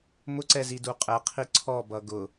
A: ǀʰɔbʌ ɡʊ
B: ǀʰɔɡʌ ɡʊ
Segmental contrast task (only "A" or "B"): A